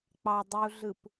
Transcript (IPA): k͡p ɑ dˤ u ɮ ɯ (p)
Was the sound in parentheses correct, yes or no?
yes